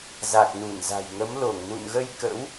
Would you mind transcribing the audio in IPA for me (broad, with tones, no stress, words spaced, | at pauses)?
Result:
za˨˩k̚nu˧˩nza̤˨˩jŋə˨˦m lo˧˩ŋnṵ˧˨nɣə˧j kə̰˧˥w